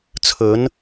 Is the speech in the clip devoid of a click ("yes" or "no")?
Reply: yes